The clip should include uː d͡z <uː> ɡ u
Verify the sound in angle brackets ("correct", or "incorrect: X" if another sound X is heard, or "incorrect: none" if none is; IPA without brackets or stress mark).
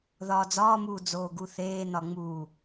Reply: incorrect: oː